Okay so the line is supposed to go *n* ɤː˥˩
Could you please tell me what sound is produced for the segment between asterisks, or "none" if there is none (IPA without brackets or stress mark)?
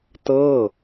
t